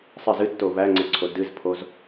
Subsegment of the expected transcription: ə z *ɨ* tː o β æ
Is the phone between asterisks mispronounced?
no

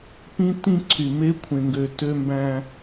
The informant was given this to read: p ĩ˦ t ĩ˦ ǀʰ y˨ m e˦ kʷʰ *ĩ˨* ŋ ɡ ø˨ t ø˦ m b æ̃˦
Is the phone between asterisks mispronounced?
yes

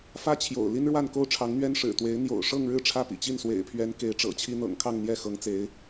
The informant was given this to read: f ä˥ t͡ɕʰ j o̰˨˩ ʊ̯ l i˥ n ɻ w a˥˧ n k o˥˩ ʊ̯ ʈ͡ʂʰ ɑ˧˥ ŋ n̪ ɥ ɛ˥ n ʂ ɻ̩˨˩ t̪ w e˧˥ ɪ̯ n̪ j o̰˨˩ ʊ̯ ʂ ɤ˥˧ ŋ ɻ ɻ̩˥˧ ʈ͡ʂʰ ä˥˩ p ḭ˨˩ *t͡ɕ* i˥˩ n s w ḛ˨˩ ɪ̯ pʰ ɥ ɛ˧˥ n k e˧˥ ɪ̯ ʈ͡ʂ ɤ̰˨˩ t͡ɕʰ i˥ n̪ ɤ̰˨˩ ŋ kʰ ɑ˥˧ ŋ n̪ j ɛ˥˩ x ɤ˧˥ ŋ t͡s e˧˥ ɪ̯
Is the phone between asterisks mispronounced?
no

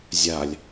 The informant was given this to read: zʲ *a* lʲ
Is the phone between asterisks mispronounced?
no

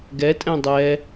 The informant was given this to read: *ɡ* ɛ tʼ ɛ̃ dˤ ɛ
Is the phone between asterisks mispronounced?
no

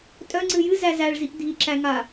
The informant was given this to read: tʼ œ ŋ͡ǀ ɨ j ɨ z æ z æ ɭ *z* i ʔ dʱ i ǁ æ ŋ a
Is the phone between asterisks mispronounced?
no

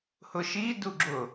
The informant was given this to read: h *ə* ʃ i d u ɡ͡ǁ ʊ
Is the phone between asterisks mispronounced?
yes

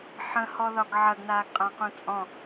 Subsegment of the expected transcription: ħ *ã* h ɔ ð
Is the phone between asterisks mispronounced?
yes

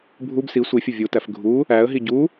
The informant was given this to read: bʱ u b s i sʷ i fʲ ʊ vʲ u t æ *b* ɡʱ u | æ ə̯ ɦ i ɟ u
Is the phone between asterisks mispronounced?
yes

